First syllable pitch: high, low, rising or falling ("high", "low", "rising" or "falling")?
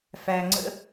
low